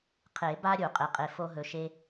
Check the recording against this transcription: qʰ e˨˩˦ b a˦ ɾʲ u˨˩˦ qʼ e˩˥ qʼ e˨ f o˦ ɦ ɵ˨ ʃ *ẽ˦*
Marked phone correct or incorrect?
incorrect